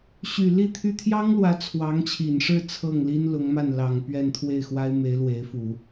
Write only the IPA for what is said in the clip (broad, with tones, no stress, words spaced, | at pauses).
ɕy˨˩ li˥˩t̪ʰy˥ t̪ʰjɑ˥ŋlwä˧˥ t͡sʰwɑ˧˥ŋt͡ɕʰi˨˩nʂɻ̩˥˧ t͡sʰɤ˥˩ŋli˥nlʊ˧˥ŋma˥˩n lɑ˨˩ŋpɥɛ˥˧nt̪ʰwe˥˩ɪ̯ xwa˥ɪ̯me˧˥ɪ̯lwe˧˥ɪ̯ fu˨˩˦